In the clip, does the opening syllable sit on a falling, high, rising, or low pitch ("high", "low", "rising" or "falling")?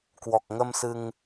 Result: low